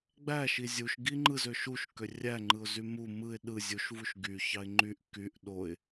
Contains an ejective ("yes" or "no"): no